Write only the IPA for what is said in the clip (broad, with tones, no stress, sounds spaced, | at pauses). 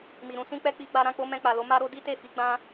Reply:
m i˨ ɾ ũ˧ s ĩ˦ k͡p ɛ˦ k͡p i˧ ɡ͡b a˧ ɾ ã˦ k͡p o˦ m ɛ̃˧ k͡p a˨ l o˨˦ m a˦ ɾ o˦ d i˦ t e˦˨ f i˨˦ ɡ͡b ã˦